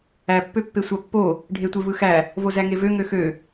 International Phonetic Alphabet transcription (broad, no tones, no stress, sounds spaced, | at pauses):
æ pː ø pː e sʷ ɑ pː o | ɖʱ e tʷ e v ɯ x æ | v o z æ ŋ e v ø ŋ ø x ø